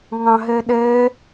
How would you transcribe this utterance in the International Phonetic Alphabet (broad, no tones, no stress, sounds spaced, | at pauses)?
ŋ ɑ̃ ɦ ɛ ɗ ɛ